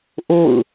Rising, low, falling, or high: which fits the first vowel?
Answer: falling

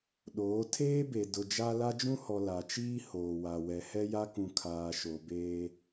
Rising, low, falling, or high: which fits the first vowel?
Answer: rising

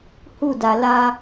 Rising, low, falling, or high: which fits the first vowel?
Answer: falling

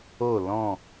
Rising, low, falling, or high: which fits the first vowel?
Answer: falling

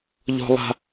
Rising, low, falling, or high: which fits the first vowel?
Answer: high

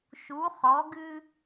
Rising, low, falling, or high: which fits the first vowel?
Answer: rising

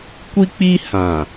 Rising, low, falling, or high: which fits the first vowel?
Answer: high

